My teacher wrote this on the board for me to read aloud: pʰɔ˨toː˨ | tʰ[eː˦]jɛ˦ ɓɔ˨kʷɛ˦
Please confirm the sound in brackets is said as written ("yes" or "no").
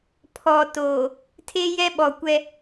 yes